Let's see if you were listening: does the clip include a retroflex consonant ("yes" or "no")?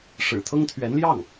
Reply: yes